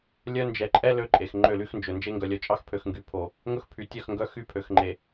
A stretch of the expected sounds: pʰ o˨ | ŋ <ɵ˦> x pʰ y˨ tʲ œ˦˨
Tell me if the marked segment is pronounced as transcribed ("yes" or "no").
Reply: yes